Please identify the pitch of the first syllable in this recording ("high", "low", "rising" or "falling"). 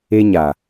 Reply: high